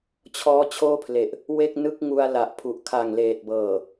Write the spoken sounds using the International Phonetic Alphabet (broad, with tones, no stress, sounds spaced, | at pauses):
t͡ɕʰ ɔː˦˥ t͡ɕʰ oː˥˩ pʰ l e˨˩ ʔ | w e˥˩ k̚ n ɯ˥˩ k̚ ŋ u˧ a̯ l a˨˩ ʔ pʰ u˨˩ ʔ kʰ a˨˩ ŋ l eː˨˩ t̚ b ɤː˨˩